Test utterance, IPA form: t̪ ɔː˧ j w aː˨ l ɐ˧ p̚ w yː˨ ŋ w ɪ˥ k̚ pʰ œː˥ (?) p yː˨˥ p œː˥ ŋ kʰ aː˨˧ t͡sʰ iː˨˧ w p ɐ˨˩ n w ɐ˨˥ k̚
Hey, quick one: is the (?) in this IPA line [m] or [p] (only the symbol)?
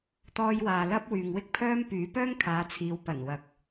m